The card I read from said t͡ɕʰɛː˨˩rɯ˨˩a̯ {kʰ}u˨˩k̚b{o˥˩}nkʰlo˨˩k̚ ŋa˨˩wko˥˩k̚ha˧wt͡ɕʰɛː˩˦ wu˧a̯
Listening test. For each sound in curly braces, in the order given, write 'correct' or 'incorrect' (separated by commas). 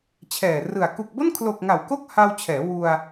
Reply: incorrect, correct